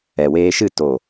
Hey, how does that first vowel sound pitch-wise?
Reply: low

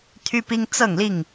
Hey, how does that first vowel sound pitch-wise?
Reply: high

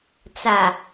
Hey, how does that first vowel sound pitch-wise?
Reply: low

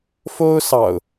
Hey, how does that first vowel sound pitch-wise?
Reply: high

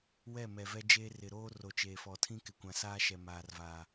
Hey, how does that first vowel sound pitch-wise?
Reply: falling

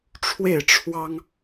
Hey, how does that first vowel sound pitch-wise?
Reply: falling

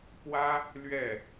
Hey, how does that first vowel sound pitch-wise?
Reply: high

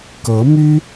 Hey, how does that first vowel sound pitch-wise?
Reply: rising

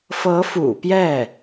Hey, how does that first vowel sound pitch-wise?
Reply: rising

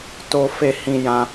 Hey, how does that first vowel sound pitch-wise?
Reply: high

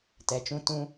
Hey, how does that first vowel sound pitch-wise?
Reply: low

